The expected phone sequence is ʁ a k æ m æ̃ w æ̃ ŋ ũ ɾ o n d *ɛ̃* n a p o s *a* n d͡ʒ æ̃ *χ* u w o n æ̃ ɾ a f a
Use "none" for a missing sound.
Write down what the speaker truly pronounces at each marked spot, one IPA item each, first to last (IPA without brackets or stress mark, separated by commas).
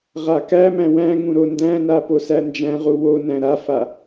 æ̃, æ, ʁ